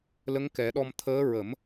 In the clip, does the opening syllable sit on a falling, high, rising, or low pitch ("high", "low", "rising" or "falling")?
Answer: rising